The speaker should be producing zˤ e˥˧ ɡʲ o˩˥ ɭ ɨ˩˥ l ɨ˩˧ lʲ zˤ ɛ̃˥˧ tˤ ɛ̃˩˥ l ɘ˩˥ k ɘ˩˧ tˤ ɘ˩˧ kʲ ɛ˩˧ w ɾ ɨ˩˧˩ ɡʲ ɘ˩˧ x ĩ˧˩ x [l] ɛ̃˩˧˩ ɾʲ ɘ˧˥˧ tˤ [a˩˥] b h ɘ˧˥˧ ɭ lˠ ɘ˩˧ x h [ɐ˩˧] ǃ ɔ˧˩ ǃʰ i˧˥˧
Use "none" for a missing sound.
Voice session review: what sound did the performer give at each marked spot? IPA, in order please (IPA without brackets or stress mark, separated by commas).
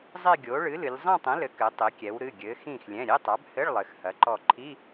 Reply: lʲ, a˩˥, ɐ˩˧